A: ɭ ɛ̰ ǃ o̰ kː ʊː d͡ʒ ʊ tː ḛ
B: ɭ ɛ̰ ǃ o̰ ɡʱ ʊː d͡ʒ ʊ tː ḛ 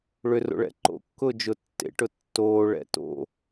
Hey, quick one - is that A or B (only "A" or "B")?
A